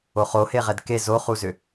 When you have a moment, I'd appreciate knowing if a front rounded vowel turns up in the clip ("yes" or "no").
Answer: yes